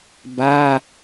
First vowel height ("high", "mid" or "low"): low